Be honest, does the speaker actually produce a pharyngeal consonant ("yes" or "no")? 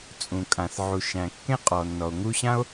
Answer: yes